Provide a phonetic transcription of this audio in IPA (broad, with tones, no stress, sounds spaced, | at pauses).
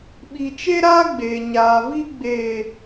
ɓ i˨ t͡ʃ e˦ ɾ aː˦ ɡ͡b eː˨ ɲ aː˨ v i˦ ɡ͡b eː˨